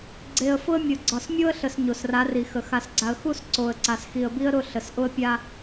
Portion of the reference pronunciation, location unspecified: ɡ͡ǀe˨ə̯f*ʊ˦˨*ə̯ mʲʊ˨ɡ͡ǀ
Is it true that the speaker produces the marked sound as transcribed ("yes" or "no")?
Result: no